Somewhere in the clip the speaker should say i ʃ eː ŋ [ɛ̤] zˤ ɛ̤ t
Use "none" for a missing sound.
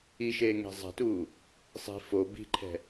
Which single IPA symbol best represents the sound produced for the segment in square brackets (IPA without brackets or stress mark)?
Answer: e̤